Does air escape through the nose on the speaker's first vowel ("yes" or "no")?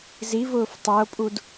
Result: no